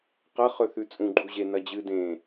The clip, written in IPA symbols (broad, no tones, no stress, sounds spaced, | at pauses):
q ɐ χ ɵ θ ʉ t͡sʼ ũ ɡ͡ǃ u ʑ e n ɐ d͡ʑ ɨ d ẽ